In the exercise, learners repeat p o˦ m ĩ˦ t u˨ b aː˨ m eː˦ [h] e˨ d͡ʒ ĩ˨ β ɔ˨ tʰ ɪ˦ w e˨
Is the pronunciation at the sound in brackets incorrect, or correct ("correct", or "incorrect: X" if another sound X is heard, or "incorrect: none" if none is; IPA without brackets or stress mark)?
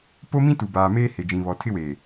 correct